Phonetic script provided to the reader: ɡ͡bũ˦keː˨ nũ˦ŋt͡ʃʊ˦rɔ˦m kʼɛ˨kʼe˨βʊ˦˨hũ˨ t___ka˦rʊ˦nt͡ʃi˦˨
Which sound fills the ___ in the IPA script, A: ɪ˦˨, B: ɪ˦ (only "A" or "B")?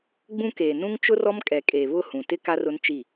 B